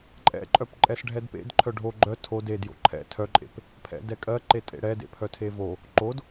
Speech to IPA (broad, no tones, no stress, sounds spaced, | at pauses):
ǃʼ ɛ̰ ǃʼ œ p ǃʼ ɛ s ɖʱ ɛ d p ḛ d ǃʰ œ ɖʱ o ɡ͡ǃ œ tʰ o d e d j o̰ ǃʰ ɛ̰ tʰ œ ǃʼ ḛ p | pʰ ɛ̰ d ɛ kʼ ɜ ǃ e tʼ ḛ ɽ ɛ d ḛ pʰ œ tʰ e v o | ǃ o d